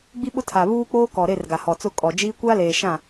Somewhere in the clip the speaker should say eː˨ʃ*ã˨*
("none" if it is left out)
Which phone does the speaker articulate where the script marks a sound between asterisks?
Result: ã˦˨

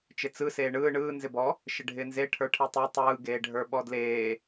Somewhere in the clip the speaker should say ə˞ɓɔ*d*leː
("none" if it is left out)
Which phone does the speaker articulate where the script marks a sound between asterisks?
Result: d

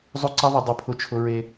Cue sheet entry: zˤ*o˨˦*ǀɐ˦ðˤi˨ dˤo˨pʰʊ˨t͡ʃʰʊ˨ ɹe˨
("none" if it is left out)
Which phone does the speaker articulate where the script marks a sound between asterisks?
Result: o˦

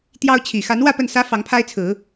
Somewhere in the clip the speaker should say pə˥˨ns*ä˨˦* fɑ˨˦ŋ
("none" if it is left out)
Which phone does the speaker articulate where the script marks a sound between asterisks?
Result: ä˦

